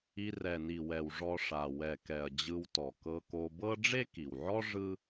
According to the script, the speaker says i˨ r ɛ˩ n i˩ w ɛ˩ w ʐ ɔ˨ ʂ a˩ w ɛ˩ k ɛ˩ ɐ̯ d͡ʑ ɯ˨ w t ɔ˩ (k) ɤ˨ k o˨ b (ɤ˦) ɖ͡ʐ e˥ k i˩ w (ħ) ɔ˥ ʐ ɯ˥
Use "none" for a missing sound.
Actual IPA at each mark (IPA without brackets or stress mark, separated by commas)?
k, ɤ˦, ʕ